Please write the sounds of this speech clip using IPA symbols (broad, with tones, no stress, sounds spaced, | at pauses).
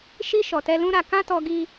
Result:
ʃ i˧ ʃ ɔ˨ t ɛ˧ l ũ˦ ɾ a˧ k ã˦ t ɔ˧ ɡ i˧